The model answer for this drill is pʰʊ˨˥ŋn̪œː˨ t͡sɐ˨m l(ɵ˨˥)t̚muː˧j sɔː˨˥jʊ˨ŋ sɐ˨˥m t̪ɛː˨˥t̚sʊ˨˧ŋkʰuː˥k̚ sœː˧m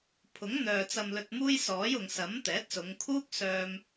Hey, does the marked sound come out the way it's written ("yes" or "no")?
no